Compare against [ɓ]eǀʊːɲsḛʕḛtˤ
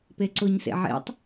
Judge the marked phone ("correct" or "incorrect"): incorrect